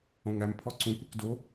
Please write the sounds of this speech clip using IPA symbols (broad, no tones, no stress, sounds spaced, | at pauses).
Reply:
õ ŋ æ m pʰ ɔ ǀ ũ kʷ i k d o